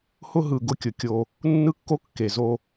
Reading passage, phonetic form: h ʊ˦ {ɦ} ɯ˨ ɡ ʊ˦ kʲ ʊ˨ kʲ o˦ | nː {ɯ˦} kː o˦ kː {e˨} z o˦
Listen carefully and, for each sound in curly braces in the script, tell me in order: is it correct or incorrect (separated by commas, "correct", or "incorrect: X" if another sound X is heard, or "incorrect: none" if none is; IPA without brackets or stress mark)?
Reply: correct, correct, correct